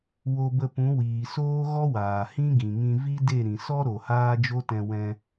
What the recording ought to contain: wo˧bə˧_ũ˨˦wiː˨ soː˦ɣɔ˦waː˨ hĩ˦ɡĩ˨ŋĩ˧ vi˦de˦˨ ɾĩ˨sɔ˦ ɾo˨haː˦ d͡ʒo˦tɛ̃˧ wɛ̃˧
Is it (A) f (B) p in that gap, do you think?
B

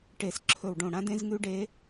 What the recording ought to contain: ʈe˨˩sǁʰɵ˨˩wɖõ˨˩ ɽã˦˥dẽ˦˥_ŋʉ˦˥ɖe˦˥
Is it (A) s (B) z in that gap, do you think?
B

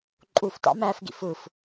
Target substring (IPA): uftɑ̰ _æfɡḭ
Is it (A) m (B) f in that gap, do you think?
A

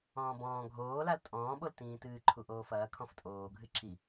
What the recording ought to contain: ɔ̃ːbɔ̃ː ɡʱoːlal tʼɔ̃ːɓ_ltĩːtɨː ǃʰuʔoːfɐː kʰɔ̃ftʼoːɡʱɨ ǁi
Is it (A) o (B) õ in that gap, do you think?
A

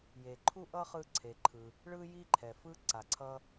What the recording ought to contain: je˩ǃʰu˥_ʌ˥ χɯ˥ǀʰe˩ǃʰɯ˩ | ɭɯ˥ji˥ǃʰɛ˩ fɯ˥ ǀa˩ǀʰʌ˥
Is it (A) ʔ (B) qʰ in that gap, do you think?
A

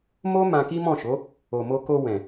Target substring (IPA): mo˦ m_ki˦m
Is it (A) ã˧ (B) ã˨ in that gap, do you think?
A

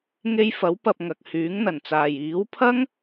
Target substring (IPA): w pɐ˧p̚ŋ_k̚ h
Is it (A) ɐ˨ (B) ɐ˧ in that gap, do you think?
A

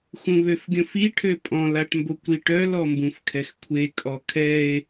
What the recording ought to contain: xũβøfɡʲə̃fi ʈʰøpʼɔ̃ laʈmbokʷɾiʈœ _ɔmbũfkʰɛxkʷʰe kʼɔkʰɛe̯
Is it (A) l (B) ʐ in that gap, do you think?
A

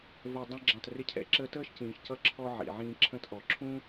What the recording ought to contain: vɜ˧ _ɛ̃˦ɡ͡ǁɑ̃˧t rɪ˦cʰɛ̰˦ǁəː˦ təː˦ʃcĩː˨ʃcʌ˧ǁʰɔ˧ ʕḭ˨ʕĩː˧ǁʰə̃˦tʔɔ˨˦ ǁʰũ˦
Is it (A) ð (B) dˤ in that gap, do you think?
B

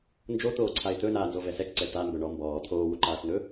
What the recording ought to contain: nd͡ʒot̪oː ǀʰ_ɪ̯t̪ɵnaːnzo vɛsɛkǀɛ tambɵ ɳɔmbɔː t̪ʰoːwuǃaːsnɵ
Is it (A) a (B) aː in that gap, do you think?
A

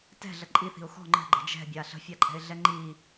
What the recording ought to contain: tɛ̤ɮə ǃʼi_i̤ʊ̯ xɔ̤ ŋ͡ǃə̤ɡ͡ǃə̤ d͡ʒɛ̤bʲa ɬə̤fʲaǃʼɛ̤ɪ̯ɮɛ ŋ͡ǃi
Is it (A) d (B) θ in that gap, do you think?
B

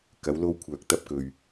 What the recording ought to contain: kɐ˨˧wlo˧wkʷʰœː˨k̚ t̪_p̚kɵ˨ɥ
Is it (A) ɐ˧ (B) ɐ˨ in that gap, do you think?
A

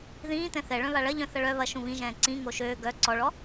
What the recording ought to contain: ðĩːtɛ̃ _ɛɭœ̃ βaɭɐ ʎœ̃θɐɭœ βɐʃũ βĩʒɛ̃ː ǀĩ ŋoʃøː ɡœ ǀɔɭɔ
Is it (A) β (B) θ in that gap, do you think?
B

